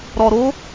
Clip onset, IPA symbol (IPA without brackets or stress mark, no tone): ɾ